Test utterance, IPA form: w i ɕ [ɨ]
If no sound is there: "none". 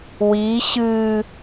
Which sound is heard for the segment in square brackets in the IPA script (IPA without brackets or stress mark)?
ɨ